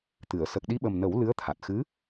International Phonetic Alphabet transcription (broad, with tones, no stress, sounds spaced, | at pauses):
t̪ ɨ˨˩˨ ə̯ s ə˨˩ k̚ ɗ i˧ ɓ ə˨˩ m n ə˨˩˦ w l ɨ˧˥ ə̯ t̪ʰ a˨˩ t̚ x ɨ˧˥